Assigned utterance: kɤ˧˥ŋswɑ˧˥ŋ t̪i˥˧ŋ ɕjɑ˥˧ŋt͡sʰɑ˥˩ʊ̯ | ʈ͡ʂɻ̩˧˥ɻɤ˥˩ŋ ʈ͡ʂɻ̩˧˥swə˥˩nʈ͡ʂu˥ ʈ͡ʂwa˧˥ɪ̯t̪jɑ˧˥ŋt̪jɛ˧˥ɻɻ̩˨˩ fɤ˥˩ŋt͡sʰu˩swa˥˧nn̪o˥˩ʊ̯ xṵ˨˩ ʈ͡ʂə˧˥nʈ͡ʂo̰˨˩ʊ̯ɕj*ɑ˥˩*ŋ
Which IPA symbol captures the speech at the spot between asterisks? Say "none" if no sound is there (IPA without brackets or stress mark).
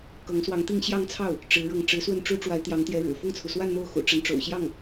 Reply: ɑ˥˩